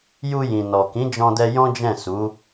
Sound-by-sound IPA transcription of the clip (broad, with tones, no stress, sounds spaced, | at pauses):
j u˧ j ĩ˨ n ɔ˨ k ĩ˨˦ d͡ʒ ɔ̃˧ d ɛ˧ j ɔ̃˦ d͡ʒ ɛ̃˦˨ s u˨˦